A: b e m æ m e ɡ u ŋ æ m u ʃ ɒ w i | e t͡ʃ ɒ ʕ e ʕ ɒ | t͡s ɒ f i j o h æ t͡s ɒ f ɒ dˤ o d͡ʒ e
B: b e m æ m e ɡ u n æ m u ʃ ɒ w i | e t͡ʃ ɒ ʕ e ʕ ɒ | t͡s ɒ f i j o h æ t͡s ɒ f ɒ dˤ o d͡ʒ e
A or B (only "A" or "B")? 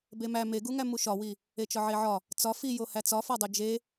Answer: A